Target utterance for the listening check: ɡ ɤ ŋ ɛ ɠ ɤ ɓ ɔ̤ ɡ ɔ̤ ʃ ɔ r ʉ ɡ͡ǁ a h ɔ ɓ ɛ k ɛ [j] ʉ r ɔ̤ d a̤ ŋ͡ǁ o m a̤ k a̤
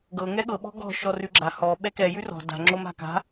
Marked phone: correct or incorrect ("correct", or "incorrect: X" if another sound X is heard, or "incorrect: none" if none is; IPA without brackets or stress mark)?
correct